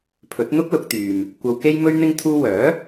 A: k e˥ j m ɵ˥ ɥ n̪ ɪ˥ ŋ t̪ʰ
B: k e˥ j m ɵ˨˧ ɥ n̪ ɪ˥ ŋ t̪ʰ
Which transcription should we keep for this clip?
A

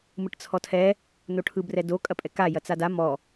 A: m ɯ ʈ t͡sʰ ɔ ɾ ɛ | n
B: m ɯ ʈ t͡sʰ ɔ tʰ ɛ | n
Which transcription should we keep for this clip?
B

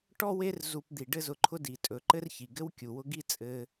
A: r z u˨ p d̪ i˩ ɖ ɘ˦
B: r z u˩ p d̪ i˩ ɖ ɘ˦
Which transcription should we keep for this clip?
A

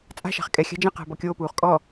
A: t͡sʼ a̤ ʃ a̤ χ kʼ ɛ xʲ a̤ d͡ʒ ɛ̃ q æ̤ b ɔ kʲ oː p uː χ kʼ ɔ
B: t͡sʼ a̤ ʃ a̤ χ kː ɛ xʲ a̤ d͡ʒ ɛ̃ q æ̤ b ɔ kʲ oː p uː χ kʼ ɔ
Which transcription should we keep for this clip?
A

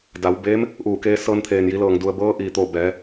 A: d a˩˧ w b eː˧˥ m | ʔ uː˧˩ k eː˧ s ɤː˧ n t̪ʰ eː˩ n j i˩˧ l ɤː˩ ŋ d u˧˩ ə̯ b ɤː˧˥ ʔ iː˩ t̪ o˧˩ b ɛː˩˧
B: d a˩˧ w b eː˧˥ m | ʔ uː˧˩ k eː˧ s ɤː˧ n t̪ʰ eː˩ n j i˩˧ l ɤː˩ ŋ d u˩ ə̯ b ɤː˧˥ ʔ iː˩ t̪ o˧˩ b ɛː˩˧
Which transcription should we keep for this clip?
B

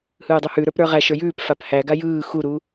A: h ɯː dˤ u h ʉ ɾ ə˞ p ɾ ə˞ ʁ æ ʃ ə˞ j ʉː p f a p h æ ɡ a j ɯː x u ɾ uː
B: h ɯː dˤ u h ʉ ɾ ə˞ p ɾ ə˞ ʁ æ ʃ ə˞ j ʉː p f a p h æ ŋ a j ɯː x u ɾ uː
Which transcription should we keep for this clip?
A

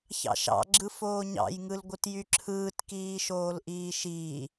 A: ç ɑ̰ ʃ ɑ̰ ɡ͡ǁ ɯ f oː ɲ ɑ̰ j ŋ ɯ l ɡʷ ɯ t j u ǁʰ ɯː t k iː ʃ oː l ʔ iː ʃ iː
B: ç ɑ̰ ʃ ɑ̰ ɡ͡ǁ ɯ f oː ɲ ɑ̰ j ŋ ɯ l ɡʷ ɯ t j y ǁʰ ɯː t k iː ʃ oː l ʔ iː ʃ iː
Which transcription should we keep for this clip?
B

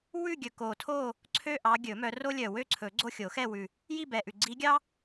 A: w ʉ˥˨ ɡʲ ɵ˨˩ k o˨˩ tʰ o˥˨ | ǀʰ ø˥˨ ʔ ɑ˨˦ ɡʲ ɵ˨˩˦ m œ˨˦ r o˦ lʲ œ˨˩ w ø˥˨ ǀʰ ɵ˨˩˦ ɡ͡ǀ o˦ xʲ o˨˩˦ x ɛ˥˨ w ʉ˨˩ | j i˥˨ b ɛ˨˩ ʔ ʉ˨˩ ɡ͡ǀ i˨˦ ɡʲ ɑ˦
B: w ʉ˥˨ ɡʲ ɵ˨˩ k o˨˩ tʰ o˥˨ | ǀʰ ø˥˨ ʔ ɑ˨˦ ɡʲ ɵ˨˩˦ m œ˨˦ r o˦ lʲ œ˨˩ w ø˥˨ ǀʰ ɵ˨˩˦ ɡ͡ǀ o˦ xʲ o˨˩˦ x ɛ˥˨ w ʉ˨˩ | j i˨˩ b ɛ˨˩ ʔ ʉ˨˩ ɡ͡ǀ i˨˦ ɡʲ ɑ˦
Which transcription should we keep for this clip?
A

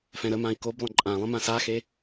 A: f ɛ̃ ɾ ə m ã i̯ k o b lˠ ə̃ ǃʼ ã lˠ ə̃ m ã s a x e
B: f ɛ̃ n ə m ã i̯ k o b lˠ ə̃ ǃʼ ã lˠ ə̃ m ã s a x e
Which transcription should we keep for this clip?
A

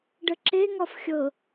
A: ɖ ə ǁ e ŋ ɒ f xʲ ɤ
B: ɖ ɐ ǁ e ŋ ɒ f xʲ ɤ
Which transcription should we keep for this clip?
A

